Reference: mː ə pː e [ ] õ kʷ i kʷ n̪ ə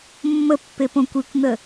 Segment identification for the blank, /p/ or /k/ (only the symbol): p